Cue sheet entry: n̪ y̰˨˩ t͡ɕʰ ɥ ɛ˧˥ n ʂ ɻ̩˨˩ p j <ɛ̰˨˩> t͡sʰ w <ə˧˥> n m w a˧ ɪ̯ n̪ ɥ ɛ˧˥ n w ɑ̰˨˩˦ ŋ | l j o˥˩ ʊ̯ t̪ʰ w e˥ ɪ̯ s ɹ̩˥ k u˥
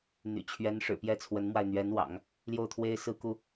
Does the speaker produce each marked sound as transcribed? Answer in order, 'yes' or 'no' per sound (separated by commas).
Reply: no, yes